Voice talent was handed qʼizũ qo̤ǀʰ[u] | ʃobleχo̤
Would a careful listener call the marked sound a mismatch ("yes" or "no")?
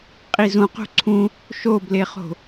yes